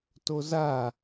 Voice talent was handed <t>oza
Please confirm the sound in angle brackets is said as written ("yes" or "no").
yes